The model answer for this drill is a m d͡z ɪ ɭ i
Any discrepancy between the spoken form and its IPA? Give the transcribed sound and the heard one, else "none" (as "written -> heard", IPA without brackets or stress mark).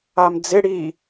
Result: ɭ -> ɽ